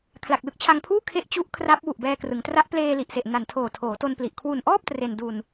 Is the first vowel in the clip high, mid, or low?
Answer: low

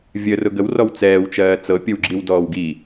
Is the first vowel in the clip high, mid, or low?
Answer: mid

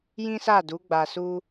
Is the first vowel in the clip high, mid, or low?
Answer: high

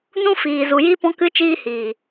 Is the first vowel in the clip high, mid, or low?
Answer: high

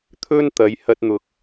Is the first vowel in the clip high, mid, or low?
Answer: mid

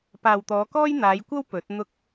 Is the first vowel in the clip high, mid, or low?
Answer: low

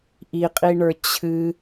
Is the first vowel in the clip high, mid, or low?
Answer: high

